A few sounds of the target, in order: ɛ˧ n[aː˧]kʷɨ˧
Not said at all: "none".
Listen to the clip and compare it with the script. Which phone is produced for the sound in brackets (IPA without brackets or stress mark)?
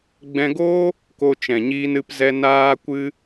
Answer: aː˧